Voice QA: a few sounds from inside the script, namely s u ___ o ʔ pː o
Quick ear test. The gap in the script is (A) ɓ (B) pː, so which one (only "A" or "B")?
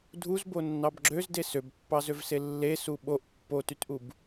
A